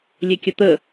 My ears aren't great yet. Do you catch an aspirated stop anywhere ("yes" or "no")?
no